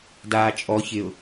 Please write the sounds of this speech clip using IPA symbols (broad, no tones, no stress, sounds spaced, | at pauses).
d aː t͡ʃʼ ɔ ç ɪ ʊ̯